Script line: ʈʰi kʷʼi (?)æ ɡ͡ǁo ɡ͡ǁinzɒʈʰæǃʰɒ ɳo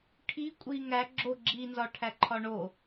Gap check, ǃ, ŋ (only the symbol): ŋ